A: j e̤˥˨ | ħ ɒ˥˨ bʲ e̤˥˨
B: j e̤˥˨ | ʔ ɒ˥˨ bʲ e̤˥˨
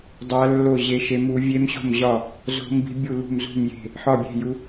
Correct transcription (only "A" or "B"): A